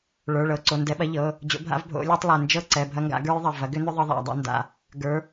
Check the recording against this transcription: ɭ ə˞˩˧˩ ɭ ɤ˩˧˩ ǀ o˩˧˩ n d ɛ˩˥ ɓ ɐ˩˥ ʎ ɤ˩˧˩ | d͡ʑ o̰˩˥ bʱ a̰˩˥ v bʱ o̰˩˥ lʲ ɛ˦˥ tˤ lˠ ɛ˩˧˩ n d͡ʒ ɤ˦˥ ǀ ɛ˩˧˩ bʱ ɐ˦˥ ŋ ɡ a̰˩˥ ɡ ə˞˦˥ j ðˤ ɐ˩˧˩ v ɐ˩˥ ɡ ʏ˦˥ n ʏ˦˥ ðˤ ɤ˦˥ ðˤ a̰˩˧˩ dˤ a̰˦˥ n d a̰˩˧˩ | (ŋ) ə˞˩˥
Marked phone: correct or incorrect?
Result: incorrect